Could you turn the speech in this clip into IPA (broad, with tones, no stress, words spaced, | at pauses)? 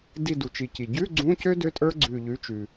di˧˩du˩t͡ʃi˩ ci˩ ɟʉ˧˥˧ ɡ͡ǀũ˧˥˧cø˥ dø˥tʼə˞˥ɡ͡ǀʉ˧˩ ʎʉ˩˥t͡ʃʉ˩